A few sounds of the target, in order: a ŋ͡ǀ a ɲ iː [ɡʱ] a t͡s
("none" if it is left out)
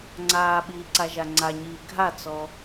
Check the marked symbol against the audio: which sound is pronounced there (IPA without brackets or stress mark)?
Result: ɡʱ